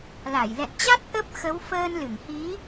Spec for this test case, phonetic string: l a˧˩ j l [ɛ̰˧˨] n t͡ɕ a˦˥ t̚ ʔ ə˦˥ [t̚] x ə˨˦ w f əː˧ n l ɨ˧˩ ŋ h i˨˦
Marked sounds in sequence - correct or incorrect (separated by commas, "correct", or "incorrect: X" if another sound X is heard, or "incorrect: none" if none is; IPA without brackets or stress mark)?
correct, incorrect: p̚